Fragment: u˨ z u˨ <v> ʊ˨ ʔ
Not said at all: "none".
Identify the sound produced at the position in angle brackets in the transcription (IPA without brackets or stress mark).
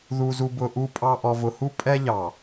b